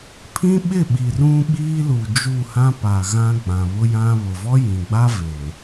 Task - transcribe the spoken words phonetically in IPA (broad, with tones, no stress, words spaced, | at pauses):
pʰĩ˦ɓɪ˦˨ɓi˨ rũ˦ɓiː˦lu˨ d͡ʒu˦˨hã˦pa˨ɣã˦ ɡ͡bã˨βʊ˦jã˦ βʊ˨vɔ˦jĩ˨ɡ͡ba˦ ve˨